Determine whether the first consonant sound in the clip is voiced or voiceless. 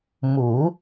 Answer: voiced